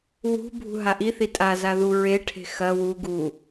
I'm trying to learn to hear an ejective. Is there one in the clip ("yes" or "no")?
yes